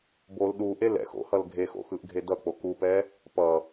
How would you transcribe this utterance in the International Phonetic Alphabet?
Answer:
bol ɗuʔe lɛ̰x o̰ hʌlɡʱexo̰ xɯʔɡʱedʌk͡po kupɛ | pʌ

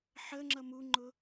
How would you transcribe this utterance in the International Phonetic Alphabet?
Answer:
ħə ŋ͡ǁʌmuŋ͡ǃʊ

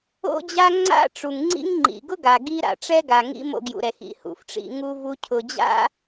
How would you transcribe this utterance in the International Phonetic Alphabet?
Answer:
o̰˥d͡ʑa˥ ŋ͡ǀa̰˥ʈ͡ʂu˩ŋŋ͡ǀḭ˥ŋŋ͡ǃḭ˩ ɡʊ˥ɡa˩ ɡi˥ ɾa̰˩ʈ͡ʂɛ˥ ɡa˩ŋḭ˥ mo̰˧ɡjṵ˩ɾɛ˩x ḭ˩hṵ˩fʈ͡ʂḭ˧ ŋu˥vu˥cʰʊ˧ d͡ʑa̰˥

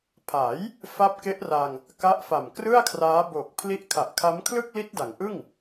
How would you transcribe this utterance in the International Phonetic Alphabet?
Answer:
pʰa˩˦j | fa˦˥p̚ke˦˥ʔra˧ŋ | ka˦˥ʔfa˨˩mkrɯ˥˩a̯kʰraː˦˥ bo˨˩k̚ pʰli˦˥ʔkʰa˨˩ʔkʰa˦˥m kʰlɯ˥˩k̚li˦˥t̚da˩˦ŋʔɯ˥˩ŋ

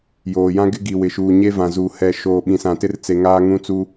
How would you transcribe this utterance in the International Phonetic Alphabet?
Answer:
joː˨jã˦ɡɪ˦ ɡi˨wɪ˨ʃuː˨ ɲe˦vã˨zu˨ hɛ˨ʃoː˨ ɓĩ˨sã˨tɪ˦rt͡se˨ ŋaː˦ ŋũ˦t͡su˦

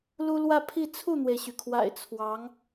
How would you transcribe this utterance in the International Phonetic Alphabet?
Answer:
lu˥ lwä˥˧pʰi˥˧ t͡sʰu˥˩n̪we˩ɪ̯ɕy˩kʰwa̰˨˩ɪ̯ t͡sʰwɑ˧˥ŋ

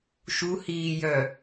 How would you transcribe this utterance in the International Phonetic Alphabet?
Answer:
ʃuhiːjœ

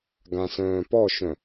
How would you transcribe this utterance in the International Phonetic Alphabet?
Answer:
ɡãsœ̃ːpɔʃœ̃

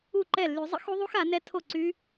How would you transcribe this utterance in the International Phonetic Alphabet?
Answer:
u˥˩ǃɛ˥˩ lːy˨˩˦zˤə̰˦˥xu˦˥ðˤu˦˥x a˨˩˦nɛ˦˥ tʰo˥˩ǀy˦˥

